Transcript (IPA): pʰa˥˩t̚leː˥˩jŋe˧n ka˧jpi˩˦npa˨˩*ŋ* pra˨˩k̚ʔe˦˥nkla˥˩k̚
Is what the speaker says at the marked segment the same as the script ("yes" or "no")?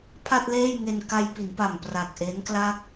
no